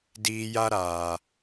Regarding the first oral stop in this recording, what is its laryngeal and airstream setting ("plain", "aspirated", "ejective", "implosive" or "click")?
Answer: plain